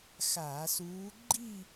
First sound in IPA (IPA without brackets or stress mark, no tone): x